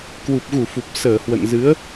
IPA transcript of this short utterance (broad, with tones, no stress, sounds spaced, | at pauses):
k w u˨˩ p̚ ɣ u˧˩ f u˨˩ p̚ s əː˧˩ h w ə̰˧˨ n z ɨ˨˦ ə̯